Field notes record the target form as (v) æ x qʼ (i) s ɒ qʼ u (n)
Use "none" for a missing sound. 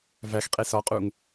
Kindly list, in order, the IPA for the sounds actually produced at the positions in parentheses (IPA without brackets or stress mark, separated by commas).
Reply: v, e, ŋ